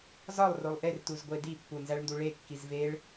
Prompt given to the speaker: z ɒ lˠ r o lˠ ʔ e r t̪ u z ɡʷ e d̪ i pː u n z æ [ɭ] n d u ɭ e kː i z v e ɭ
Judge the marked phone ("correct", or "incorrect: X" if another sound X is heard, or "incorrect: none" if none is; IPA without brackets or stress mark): correct